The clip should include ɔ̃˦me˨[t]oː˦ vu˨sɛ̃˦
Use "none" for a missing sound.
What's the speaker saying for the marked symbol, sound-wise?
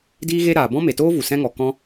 t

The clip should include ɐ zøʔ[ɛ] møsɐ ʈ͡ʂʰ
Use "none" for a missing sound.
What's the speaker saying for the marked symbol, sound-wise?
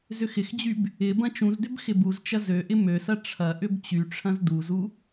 ɪ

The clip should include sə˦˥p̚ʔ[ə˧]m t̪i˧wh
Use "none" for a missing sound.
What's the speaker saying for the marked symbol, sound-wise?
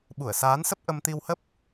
ə˧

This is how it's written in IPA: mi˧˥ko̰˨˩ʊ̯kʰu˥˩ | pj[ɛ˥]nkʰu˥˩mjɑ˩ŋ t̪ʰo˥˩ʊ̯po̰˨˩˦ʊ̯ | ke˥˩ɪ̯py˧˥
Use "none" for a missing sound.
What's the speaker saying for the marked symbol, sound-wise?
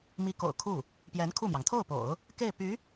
ɛ˧˥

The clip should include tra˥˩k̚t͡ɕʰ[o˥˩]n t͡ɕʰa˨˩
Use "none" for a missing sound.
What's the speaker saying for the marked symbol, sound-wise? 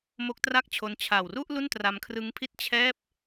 o˧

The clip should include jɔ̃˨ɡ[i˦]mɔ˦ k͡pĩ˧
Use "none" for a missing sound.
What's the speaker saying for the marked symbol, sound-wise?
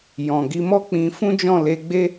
i˨˦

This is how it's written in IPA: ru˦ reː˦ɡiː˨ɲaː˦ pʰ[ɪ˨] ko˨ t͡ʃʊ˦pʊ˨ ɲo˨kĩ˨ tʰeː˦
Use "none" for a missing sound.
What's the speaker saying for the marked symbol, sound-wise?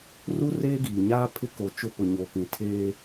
ɪ˦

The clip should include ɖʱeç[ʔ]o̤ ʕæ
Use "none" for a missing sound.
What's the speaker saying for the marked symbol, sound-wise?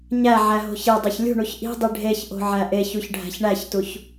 ʔ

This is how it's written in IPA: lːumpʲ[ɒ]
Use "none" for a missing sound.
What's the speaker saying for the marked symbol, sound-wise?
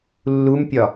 ɒ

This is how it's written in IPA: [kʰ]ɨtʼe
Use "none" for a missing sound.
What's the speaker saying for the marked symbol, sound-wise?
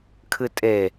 kʰ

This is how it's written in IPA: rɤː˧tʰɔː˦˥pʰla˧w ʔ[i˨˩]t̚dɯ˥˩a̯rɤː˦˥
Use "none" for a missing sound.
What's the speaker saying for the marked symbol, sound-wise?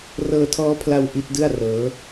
i˦˥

